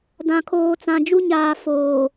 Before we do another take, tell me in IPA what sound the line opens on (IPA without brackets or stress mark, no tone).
d